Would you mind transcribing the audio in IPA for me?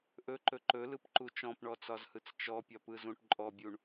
ʔ ɵ ǃ ɵ ǃ ɵ l ɯ p ǃ u t͡ʃ ɔ̃ p ɳ ɔ t͡s ɒ z h ɯ t͡s t͡ʃ ɔ pʲ ɒ p ɯ z ũ ʈ ǃʼ ɔ bʲ u ɳ

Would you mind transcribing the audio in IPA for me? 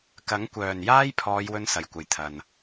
k ɐ˨˥ ŋ kʷ œː˨˩ n j aː˥ j pʰ ɔː˨˧ j w ɵ˥ n s ɐ˨˩ j kʷ ɐ˨ j t̪ʰ ɐ˨ n

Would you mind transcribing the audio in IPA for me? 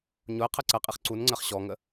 ɲ ʊ ə̯ qʰ ɜ ǀ ɜ qʼ i χ ǀ u n ŋ͡ǀ ɜ χ ɕ ɔ ŋ ə

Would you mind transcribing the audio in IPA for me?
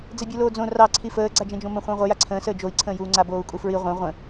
d͡z ɛ bʲ u l oː d͡z õ r ɑ ǀʰ i f əː ɡ͡ǀ a d͡ʒ ɛ̃ d͡ʒ õ m ə̃ χʷ ə̃ː ʁʷ ə j a ǀʰ ə̃ː s əː d͡ʒ o i̯ ǀʰ ə̃ː j uː ŋ͡ǀ a b oː u̯ kʼ u f ɹ i ʁʷ ɛ̃ ʁʷ ə̃

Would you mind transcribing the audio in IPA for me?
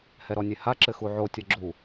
h ɛ ɾ ɔ nʲ e h a ǁ ɘ x u ʕ o tʲ ɐ ɡ͡ǁ u

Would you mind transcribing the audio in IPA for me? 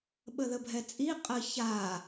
ɓ ə ð ə bʱ ɛ t͡sʼ i qʼ ə ç a

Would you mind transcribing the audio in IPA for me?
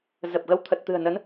z ə˨˩ p̚ ɣ ə˧ w t̪ʰ ə˨˩ t̚ t̪ ɨ̤˨˩ ə̯ n ə˨˦ n

